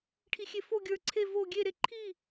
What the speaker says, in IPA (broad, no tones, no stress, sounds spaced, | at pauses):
ʈʰ i xʲ e f o ɡʲ ə˞ ǀʰ e v o ɡʲ e ɾ e ǃʰ i